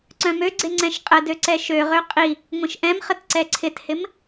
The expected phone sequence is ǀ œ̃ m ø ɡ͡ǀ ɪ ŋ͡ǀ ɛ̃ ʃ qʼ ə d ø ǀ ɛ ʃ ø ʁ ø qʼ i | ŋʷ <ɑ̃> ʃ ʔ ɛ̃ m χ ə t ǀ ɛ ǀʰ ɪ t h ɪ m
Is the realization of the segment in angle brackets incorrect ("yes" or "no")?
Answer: yes